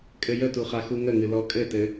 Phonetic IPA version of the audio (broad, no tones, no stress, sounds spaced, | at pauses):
kʼ ɘ j ə t u χ a x u ŋ ə ŋ ɨ l ɔ kʼ ɘ t ɘ